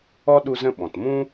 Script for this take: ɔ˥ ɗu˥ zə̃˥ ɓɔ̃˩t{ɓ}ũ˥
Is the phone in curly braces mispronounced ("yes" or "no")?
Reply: yes